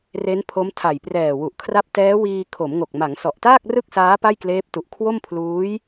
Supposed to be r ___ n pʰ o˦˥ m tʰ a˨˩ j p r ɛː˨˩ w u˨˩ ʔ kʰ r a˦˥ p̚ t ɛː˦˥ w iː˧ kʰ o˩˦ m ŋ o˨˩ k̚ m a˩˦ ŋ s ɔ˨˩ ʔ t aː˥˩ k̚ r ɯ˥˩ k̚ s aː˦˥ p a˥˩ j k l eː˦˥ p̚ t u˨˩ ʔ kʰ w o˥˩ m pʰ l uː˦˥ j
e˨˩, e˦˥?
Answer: e˦˥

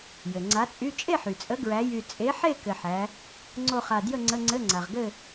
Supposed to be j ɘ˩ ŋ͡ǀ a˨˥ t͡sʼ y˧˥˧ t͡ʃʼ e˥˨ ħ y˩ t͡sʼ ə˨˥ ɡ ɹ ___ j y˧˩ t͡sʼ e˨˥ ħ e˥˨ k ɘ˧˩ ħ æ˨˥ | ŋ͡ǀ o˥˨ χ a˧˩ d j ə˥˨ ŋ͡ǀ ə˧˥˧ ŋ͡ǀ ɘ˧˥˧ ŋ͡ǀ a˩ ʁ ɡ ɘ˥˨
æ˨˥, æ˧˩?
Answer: æ˨˥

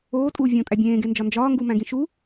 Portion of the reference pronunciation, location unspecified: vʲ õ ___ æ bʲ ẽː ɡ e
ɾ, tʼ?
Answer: tʼ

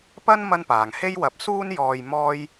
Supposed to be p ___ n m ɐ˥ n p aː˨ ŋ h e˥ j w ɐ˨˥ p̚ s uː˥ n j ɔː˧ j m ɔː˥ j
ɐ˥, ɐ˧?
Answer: ɐ˥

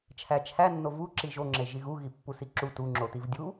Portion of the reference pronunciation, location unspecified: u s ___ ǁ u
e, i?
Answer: i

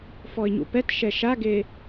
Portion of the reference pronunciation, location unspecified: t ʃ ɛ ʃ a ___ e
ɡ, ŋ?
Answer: ɡ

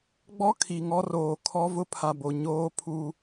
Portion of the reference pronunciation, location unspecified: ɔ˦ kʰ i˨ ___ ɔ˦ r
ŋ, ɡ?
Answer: ŋ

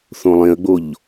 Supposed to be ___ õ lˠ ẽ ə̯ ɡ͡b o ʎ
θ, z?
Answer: θ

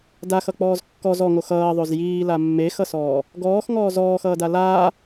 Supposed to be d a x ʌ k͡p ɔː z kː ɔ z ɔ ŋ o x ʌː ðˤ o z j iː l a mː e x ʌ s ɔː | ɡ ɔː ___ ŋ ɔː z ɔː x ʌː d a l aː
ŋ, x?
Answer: x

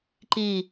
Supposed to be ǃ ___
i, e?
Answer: i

